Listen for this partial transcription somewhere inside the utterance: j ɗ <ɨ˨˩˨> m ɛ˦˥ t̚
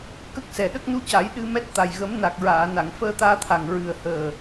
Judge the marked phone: incorrect: ɨ˧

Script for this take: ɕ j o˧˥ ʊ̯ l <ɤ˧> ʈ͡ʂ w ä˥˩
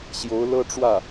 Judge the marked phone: incorrect: ɤ˥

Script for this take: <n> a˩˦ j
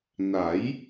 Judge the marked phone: correct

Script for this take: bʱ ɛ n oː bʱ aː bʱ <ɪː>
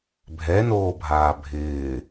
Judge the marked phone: correct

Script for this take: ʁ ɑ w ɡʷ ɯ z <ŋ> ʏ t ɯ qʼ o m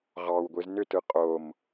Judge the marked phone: incorrect: n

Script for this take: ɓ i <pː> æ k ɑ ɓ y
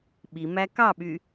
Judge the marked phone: incorrect: m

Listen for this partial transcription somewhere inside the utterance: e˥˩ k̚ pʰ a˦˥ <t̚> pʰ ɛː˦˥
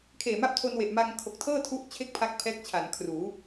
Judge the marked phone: incorrect: k̚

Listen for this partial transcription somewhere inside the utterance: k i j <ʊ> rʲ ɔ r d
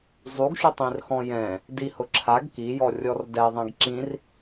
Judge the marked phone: incorrect: ɔ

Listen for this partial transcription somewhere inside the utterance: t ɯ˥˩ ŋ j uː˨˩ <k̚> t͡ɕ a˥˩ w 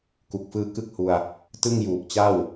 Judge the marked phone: correct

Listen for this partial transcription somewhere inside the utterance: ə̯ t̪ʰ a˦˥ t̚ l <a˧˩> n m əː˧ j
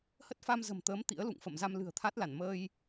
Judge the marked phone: correct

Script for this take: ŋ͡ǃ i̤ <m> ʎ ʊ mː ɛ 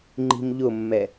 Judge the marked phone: correct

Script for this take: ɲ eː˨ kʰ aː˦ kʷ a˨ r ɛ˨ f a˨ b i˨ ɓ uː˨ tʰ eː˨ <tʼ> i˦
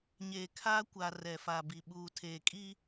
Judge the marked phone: incorrect: kʼ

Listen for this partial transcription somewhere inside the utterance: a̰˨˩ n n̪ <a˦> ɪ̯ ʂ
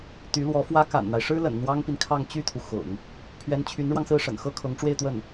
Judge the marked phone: correct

